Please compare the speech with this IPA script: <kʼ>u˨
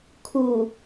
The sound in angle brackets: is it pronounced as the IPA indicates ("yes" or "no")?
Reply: no